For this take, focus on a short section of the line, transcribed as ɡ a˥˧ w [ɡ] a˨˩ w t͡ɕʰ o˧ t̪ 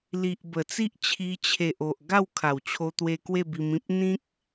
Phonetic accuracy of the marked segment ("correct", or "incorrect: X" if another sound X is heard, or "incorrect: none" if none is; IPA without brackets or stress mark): incorrect: kʰ